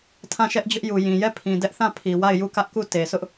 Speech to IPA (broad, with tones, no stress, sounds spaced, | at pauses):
tʰ ã˦˨ ʃ ɛ˦ ʔ d͡ʑ ʊ˦ ʔ j u˨ j ĩ˨ j ɛ˦˨ pʰ ĩ˨ d ɛ˦ ʔ θ ã˦˨ pʰ i˨ w a˦˨ ɪ̯ j u˦˨ k ä˦ ʔ k u˦˨ t e˨ s ʊ˦ ʔ